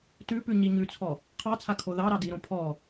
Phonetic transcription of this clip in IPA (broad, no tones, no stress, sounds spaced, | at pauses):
t ʉ p ʉ ɲ i ɲ ʉ t͡sʰ ɔ | qʰ ɑ t͡sʰ a kʰ o ð ɑ ɾ ɑ d i ɾ õ pʰ ɔ